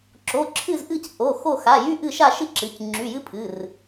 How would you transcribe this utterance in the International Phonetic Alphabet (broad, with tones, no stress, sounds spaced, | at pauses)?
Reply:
ǁ o˩˧˩ ǁʰ ɨ˦˨ z ʔ ɨ˦˨ c ʔ o˩˧˩ x o˦˨ x a˩˧˩ j y˦ ʔ ɨ˦˨ ʃ a˦˨ ʃ ɨ˦ ǁ ɨ˩˧˩ c ŋ͡ǁ y˩˧˩ j ɨ˦ pʰ ɨ˩˧˩ r